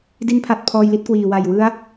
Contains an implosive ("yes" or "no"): no